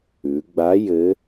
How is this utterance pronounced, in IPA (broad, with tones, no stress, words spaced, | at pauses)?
ʉ˩˧ɡ͡ba˧˥ jɘ˧˥